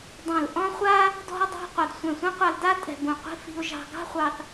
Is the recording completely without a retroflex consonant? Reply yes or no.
yes